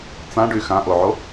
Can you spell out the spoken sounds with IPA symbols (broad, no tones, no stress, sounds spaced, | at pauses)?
t͡s ã ɖ y x ã ʔ o ʕ o